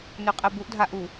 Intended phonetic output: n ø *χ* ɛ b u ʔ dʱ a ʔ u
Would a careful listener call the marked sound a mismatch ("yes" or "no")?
yes